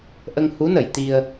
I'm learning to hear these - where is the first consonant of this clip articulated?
throat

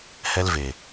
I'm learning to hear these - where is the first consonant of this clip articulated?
throat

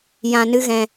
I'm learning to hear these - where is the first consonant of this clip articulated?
palate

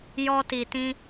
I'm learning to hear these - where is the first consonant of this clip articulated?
palate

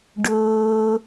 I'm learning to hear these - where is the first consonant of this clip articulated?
retroflex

